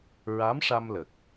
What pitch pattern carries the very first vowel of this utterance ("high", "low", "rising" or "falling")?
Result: rising